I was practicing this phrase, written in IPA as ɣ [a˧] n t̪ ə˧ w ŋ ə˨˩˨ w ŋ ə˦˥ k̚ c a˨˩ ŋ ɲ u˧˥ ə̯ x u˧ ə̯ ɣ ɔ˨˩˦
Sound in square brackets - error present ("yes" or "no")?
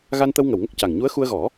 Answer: no